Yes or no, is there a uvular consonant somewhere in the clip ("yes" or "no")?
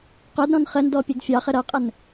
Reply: yes